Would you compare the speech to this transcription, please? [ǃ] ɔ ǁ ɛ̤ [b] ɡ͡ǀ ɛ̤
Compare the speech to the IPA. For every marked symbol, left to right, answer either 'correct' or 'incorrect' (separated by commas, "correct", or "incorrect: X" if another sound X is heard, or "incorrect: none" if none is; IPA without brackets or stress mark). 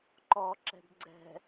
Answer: correct, correct